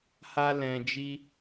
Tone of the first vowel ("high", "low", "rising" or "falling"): high